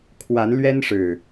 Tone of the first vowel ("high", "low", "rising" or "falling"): rising